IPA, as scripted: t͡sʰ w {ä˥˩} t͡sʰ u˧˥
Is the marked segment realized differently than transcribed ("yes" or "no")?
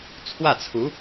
no